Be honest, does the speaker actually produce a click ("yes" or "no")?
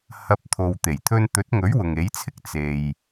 no